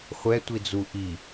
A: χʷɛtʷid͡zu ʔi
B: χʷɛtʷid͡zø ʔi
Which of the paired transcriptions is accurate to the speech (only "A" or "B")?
A